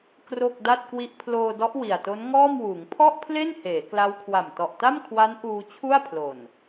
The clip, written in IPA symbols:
k r o˥˩ k̚ d a˥˩ t̚ k w i˥˩ ʔ pʰ l oː˧ d ɔ˦˥ ʔ w i˨˩ a̯ t o˦˥ n ŋ ɔː˥˩ m w uː˩˦ ŋ pʰ ɔ˥˩ ʔ pʰ l e˥˩ n h eː˩˦ k l a˦˥ w kʰ w a˨˩ m t ɔ˨˩ ʔ t a˥˩ m kʰ w a˦˥ n ʔ uː˧ t͡ɕʰ u˥˩ a̯ pʰ l o˨˩ n

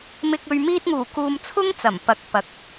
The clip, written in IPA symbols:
m ɪ˨ k̚ ɵ˨ ɥ m iː˧ t̚ ŋ uː˨˩ k uː˧ m t͡sʰ ʊ˥ ŋ t͡s ɐ˨˩ m p ɐ˨˥ k̚ p ɐ˨ k̚

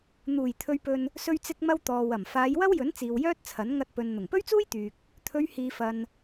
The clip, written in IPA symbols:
n̪ uː˨˩ j t̪ʰ ɵ˨ ɥ p ɵ˨ n | s ɵ˧ ɥ t͡s ɪ˧ k̚ m ɐ˧ w t̪ ɔː˨ w ɐ˨˩ m f aː˨˧ j w ɐ˥ w j ɵ˨˥ n t͡s iː˨ w j œː˥ t̚ t͡sʰ ɐ˨˥ n ŋ ɐ˧ t̚ p ɵ˨ n n̪ ʊ˨˩ ŋ p ɵ˥ ɥ t͡s uː˥ j t̪ yː˨ k̚ | t̪ʰ ɵ˨˧ ɥ h iː˨ f ɐ˨ n

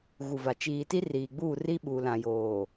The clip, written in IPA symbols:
ɣ u˨ v a˨ t͡ʃ iː˨ t i˦ r iː˨ ɡ͡b uː˦˨ r i˦ ɓ u˨ l ã˨ j oː˨

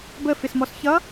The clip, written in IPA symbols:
b ə f ɪ s m ɔ s ç ʌ

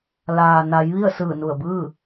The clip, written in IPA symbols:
l aː˩ n a˩˧ j ʋ i˥˨ ə̯ s ɯː˧˩ n u˧˩ ə̯ b ɯː˥˨

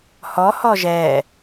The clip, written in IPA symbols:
h ɔ h ɔ ʒ ɛ

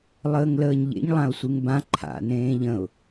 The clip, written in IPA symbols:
lˠ əː ŋ l əː ɲ ʎ ḛ ɲ lˠ ã ʊ̯ sʷ ɨ ŋ b ã ǃʰ a̰ n ẽː ʎ ə̃ ʊ̯

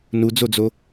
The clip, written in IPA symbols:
n u d͡z o d͡z o

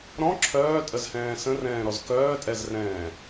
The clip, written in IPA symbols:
ɾ ɔ̃ ǁʰ œː tʼ ə z h ɛ̃ː s ə̃ r ɛ̃ː ɾ ɔ z k œː tʼ ɛ z r ɛ̃ː

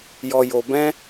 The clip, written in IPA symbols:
j ɔ˧ j o˧ b ɛ̃˦

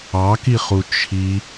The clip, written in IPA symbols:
ɑ k i χ u t͡ʃʰ i

